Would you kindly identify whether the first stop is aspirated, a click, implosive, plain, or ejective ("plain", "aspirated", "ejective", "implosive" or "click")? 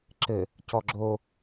click